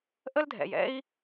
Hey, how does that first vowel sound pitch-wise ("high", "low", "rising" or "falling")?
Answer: high